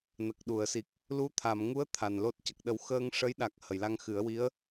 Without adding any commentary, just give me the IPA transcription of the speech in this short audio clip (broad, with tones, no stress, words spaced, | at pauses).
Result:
nə˨˩k̚ɗu˨˩˨ə̯si˨˩k̚ | lu˧˥t̪ʰa˨˩˨m ŋu˧˥ə̯ t̪ʰa˨˩nlo˦˥t̚ cə˨˩k̚ɗə˨˩˦wxəː˧ŋ ʂə˧˥jɗa˨˩k̚ hə˨˩˨jla˧ŋxɨ˨˩˦ə̯wi˧˥ə̯